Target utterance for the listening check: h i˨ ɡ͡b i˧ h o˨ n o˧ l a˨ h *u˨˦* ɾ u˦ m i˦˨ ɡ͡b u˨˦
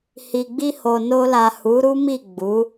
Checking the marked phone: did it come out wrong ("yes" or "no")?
no